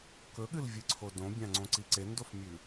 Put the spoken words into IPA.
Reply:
k ɵ ɠ ɨ l vʲ ɨ ǀʰ o d õ bʲ ã ŋ͡ǀ õ ǀ i ǀ e n d o f mʲ ʉ

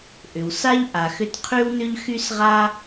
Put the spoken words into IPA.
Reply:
ʔ ʏ˩ w s a˥ ʎ ʔ a˩ x ʏ˦ t qʰ y˥ w n ʏ˥ ʎ x y˥ s ʁ a˥

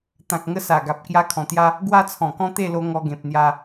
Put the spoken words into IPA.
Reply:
t̪ ã˨ k̚ ŋ ə˦ s a˨˩ ɡ a˨ p̚ k j a˦ kʰ ɔ̃˨˩ t̪ j a˦ | ɡ w a˦ t͡sʰ ɔ̃˨˩ k ɔ̃˦ t̪ e˥˧ l o˧ ŋ ɔ˧ ɡ ẽ˨ p̚ n̪ j a˧

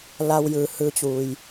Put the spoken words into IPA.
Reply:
l a˧ w j ɯː˩ h ɯː˧ t͡ɕ u˩ j

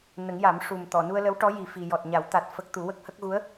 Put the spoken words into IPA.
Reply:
n ə˨˩˦ ŋ j a˨˩˦ m ʂ u˨˩ m t̪ ɔ˨˩˨ n u˧ ə̯ l ə˧˥ w ʈ ɔ˧˥ j i˨˩ f i˨˩ j ɔ˨˩ t̚ ɲ a˨˩˦ w t̪ a˨˩ t̚ f ə˦˥ k̚ t̪ u˨˩˦ w ə˦˥ k̚ h ə˦˥ k̚ ɣ u˧˥ ə̯

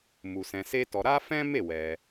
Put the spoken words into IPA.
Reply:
m u˧ s ɛ̃˧ s e˦ t ɔ˧ ɾ a˦ f ɛ̃˦ m e˦˨ w ɛ˧

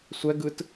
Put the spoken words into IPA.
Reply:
sʷ ɛ ɡ ɯ t

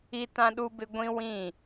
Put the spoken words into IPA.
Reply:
i˦ t ã˦ ɗ u˦ b ɪ˦ ɡʷ ĩ˦ w ĩ˦˨

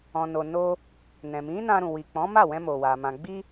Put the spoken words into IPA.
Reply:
ɔ̃˨ n o˨ n o˧ | n ɛ̃˨ m ĩ˨˦ n ã˧ ɾ ũ˨ w i˨ k͡p ɔ̃˨˦ m a˦˨ w ɛ̃˧ m o˨ w a˨ m ã˨ ɡ͡b i˧

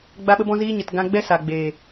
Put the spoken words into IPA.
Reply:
ɡ͡b a˦ ɓ ə˦ b ɔ̃˦ z iː˦ ɲ ə˨ t ɡ ã˧ ɡ͡b ɛ˦ s a˨ ɡ͡b eː˨

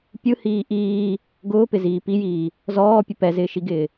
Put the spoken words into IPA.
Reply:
pʲ ɯ h iː ʔ iː | ɡ ʊː p ɪ z iː p i j iː | z ɔː pʲ ʊ p ɛ z ɪː ʃ i ɡ ɪː

